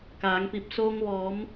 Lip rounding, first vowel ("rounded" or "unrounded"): unrounded